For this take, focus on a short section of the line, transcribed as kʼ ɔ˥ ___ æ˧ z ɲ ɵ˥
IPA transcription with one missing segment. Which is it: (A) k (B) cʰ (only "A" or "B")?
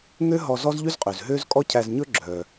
B